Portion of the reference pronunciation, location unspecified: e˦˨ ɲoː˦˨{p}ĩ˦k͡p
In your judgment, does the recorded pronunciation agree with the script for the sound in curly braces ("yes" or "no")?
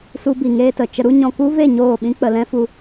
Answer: no